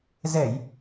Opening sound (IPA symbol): z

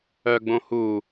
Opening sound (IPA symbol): œ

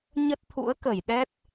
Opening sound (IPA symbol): ɲ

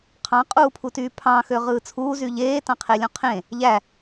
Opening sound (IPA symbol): qʰ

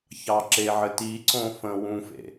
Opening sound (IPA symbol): ç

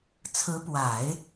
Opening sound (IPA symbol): t͡sʰ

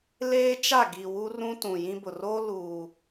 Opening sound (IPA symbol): l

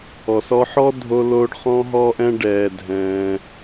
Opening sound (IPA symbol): ɔ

